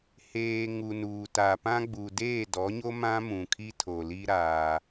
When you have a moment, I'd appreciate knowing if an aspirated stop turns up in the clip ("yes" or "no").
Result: yes